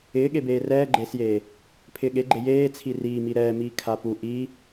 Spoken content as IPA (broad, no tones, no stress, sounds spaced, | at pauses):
ɪː ɠ e b eː r ɛː ɡ͡ǃ eː s j eː | pʰ ɪː ɠ e ɡ͡ǃ e j eː t͡sʰ i r iː m i ɾ ɛː m iː kʰ a p u ʔ i